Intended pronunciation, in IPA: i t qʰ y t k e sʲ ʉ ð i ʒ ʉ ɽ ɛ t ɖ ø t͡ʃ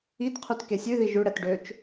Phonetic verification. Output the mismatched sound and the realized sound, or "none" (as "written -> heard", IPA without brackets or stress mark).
none